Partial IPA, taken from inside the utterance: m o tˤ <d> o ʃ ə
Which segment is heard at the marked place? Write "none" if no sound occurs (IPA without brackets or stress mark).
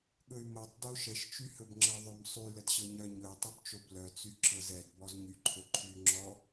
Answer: d